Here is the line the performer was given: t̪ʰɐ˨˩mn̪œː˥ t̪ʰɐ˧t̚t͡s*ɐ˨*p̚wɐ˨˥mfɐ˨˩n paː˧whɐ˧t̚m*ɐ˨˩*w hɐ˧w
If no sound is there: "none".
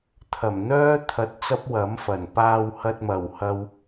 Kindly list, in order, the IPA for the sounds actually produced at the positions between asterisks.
ɐ˥, ɐ˨˩

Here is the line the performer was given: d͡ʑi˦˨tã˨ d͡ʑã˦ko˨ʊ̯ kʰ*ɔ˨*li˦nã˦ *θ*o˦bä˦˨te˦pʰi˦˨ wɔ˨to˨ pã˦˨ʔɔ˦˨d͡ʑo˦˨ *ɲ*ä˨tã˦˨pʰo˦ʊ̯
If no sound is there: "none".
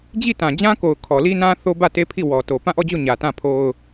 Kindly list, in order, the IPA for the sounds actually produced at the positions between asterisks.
ɔ˨, θ, ɲ

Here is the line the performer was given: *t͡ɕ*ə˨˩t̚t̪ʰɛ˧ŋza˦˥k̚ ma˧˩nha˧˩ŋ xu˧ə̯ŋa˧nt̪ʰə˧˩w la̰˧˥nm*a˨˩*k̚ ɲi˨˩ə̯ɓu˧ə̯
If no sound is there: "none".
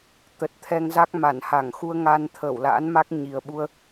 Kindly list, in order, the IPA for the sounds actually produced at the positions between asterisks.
t̪, a˦˥

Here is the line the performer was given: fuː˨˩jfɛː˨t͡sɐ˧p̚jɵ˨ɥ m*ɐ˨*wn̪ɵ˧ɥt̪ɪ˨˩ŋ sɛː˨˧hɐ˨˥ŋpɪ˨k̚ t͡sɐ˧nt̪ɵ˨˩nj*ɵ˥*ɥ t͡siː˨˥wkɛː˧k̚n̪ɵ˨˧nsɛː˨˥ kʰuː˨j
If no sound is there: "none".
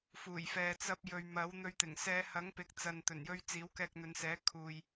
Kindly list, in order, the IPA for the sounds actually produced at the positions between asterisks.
ɐ˨˥, ɵ˥

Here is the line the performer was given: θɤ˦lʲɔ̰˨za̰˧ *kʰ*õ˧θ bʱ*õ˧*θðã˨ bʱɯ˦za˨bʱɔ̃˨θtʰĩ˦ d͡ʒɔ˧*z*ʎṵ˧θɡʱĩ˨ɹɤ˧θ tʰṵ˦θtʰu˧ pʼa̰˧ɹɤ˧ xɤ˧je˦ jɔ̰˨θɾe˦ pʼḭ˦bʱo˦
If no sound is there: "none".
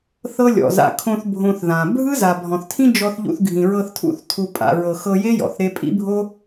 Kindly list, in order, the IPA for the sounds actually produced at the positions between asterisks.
kʰ, õ˧, θ

